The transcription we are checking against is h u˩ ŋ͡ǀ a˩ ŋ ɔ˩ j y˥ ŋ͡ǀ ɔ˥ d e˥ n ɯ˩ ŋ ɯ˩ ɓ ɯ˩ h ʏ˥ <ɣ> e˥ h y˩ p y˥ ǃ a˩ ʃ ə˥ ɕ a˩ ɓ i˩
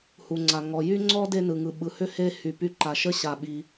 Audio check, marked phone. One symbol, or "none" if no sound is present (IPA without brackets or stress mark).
h